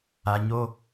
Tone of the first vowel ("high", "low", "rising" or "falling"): low